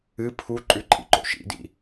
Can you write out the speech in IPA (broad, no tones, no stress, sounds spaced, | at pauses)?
ɨ pʰ u ǃʼ ʉ ǃʼ ḭ ǃ o̰ ʃ ḭ d ḭ